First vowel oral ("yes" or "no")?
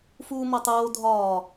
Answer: yes